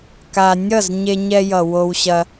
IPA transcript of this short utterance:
ka˧ nʲʌ˦˨zɲe˧ɲɛ˧jʌ˨ wo˧wɕɐ˧

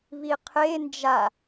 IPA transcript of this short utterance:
βiqʰe nd͡ʒa

